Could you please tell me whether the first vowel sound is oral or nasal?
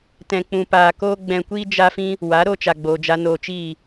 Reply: nasal